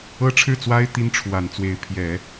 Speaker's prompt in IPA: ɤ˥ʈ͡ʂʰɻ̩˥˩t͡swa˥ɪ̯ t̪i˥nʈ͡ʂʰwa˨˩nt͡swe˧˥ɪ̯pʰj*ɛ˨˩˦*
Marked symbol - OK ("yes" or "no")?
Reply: yes